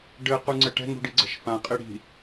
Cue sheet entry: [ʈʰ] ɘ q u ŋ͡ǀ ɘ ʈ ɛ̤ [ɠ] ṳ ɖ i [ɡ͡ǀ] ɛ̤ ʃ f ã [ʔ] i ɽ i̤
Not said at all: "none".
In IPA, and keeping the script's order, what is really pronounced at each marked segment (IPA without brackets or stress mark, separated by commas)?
ɖ, ŋ, ɡ͡ǀ, qʼ